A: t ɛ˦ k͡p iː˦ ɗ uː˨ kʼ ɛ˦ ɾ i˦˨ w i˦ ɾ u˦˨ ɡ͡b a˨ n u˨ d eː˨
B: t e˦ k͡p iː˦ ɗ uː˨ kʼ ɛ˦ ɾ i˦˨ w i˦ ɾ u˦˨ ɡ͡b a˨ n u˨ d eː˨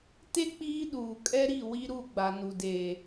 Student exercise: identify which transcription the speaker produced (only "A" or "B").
B